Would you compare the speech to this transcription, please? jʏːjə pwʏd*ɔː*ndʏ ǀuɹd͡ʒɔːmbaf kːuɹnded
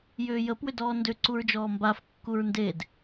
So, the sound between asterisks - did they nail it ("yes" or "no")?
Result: yes